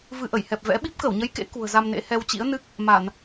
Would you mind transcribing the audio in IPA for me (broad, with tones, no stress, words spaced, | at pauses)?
vɨ˧ʔə˧˩jhɛ˨˩p̚ vɛ̰˧˥ ɓi˦˥p̚kə˧˩wɲə˨˦jkḛ˧˥ kṳ˨˩ə̯za˧mnḛ˧˥ hɛ˧wt͡ɕḭ˧˥ə̯ nɨ˦˥k̚ | ma˧˩˨n